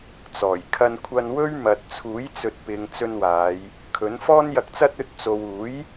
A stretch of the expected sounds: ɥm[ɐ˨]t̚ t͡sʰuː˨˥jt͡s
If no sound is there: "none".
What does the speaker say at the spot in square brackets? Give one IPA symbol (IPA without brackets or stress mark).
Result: ɐ˨